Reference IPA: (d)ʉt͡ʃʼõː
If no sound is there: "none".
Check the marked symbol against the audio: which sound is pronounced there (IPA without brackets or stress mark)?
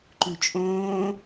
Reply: ǃ